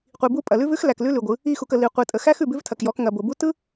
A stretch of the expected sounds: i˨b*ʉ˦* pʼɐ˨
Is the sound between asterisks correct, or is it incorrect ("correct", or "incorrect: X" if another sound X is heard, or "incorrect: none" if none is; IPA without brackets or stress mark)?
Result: incorrect: u˦